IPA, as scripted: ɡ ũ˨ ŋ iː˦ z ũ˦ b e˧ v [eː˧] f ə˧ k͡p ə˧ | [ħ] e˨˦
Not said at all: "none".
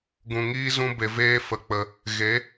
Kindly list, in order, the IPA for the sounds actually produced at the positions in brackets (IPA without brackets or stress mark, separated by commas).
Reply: eː˦, ɣ